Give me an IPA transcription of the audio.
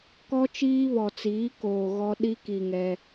k ɔ˦ t͡ʃ iː˦ β ɔ˨ t͡s iː˨˦ k oː˨ ɣ ɔ˦ ɗ i˦ k i˨ ŋ ɛ˦

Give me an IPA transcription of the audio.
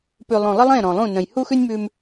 p ʉ˨ lˠ õ˨ lˠ ə˦ lˠ ẽ˦˨ ɾ ɔ̃˨ lˠ ũ˦˨ n ə̃˨ j h u˦ x ʉ˦ nʲ m ʉ˦ m

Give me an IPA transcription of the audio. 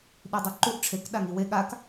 ɗ i dˤ u ǃ u ʔ ʈ͡ʂʰ e k ɗ a ŋ i w e ɠ a k

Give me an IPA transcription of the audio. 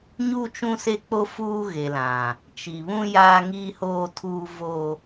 ɲ u˦ t͡ʃ ũ˦ s e˦ k͡p o˦ f uː˦ ɣ e˨ l ã˨ | t͡ʃ i˨ β ũ˦ j aː˦ ŋ iː˦ h oː˦ tʰ uː˦ v o˦

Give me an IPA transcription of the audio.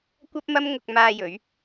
kʷ ɐ˥ p̚ m ɐ˥ m ŋ ʊ˧ k̚ m aː˧ j ɵ˨˧ ɥ

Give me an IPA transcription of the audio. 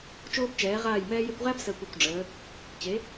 t͡ʃ oː˦ b t͡ʃ ɛː˨˦ ʁ aː˦˨ j m ɛː˧ j e˧ kʷ ʁ æ˦ b s əː˧ kʷ o˨ kʷ ɖ͡ʐ əː˨˦ | t͡ɕ e˨˦

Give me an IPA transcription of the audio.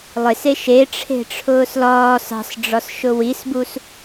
lˠ e s e ʃ e ʈ͡ʂʰ e̤ ʈ͡ʂʰ ʊː s l ɒː s ɑ̤ s ɖ͡ʐ ɒ s ʃ ʊ w i s b u s

